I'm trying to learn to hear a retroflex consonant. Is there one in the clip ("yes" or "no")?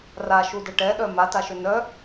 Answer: yes